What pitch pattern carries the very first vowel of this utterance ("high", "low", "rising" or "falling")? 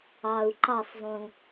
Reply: low